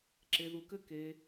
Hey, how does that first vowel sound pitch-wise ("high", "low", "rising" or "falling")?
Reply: low